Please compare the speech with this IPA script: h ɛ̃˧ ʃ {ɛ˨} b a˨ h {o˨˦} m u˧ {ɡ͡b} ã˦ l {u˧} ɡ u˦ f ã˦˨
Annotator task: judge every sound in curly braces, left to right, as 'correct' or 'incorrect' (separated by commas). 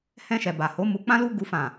correct, correct, incorrect, incorrect